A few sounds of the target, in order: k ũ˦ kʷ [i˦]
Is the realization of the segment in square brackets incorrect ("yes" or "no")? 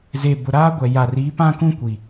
yes